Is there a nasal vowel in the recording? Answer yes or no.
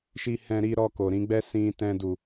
yes